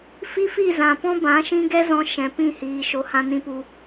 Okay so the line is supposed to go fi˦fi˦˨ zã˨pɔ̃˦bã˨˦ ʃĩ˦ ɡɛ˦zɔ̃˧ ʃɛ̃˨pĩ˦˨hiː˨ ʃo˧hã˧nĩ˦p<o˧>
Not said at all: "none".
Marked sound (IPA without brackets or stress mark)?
u˧